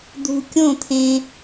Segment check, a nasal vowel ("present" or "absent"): present